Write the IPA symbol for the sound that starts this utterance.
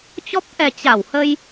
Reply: t͡ɕ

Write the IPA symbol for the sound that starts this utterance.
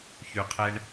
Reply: ç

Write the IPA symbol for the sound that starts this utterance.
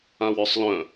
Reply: ã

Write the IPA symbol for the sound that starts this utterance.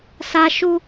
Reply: s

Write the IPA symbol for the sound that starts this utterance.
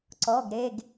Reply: ǀ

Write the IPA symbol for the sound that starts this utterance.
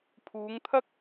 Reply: pʰ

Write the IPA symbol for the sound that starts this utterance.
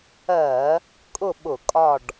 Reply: ɜ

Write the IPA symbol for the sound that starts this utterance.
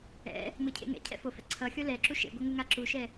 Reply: ɛ̰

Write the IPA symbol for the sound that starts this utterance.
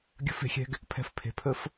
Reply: ɡʲ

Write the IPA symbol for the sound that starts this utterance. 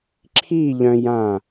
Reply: ǁʰ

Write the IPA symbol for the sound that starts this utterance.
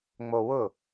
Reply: ŋ͡m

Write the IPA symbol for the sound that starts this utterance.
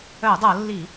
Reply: œ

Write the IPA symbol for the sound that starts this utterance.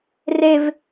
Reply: r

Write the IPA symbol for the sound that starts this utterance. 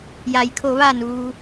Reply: j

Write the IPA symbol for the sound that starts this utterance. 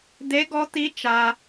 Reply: d̪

